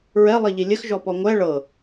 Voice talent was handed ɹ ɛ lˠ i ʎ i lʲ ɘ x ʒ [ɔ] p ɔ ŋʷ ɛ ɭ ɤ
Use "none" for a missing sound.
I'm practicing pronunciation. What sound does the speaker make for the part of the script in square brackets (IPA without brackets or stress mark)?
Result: ɔ